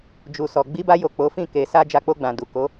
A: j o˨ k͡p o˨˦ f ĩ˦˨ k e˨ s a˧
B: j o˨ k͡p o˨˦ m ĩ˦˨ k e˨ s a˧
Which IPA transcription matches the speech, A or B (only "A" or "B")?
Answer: A